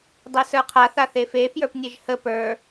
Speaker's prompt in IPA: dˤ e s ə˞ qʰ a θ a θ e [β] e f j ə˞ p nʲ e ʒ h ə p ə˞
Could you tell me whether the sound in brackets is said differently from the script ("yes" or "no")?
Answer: yes